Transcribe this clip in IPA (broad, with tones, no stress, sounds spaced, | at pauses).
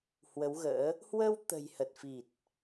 h w ə˨˦ w ɣ ə̰ː˧˥ | h w ə˧ w t̪ ə̤˨˩ j h ə˨˩ t̚ f i˨˩ t̚